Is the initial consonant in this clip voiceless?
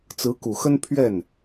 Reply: yes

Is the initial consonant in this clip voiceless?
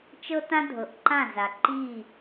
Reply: yes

